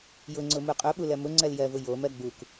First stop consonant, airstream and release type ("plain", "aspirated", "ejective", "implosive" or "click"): click